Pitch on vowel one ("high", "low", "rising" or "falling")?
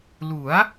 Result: rising